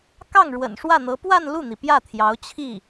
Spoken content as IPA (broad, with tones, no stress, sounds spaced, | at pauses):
k ɑ˥˩ ŋ ɻ w ə̰˨˩ n ʂ w ä˥˩ n̪ ɤ˧˥ p w a˥˧ n l u˥˩ n̪ i˩ p j ä˥˩ t̪ʰ j ɑ˧˥ ʊ̯ t͡ɕʰ i˥˩